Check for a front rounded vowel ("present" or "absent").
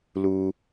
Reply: absent